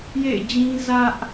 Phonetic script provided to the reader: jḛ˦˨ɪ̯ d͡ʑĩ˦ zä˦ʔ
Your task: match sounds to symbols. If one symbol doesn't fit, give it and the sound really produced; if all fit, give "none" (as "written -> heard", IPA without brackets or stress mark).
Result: none